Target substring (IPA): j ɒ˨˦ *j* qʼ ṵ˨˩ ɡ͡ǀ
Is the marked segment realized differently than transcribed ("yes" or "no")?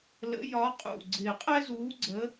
yes